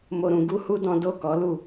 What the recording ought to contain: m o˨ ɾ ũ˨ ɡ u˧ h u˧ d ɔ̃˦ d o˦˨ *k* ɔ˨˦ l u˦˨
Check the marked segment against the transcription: correct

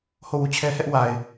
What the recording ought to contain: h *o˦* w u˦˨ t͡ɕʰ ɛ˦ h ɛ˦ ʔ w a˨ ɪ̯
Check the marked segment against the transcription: incorrect: o˦˨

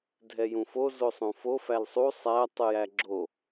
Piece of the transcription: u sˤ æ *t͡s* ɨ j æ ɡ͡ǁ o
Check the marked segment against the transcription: incorrect: tˤ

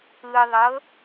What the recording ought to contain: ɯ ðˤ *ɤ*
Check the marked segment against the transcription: correct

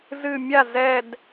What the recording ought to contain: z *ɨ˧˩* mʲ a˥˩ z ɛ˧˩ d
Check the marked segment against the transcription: correct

